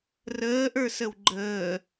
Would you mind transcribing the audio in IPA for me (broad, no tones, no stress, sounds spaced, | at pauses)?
r əː ʔ ə˞ s ə w ɡ͡ǃ əː